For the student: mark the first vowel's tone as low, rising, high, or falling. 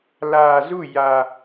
low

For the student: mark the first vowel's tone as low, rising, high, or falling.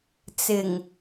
low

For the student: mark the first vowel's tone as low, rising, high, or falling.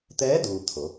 rising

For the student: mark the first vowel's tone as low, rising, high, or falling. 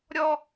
high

